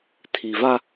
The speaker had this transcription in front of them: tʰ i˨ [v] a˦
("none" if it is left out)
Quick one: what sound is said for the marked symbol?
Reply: v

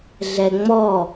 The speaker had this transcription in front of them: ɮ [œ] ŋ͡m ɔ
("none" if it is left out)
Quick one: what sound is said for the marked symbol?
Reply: ɛ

